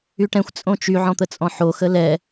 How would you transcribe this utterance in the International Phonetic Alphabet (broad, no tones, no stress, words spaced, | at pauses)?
yʈɛ̃xʷ t͡sʼõt͡ʃy ʕɔ̃t̪ət͡sʼɔ̃ħo xəlɛ